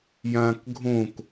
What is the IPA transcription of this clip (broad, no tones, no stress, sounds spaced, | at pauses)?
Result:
j ãː k ɡʱ õ k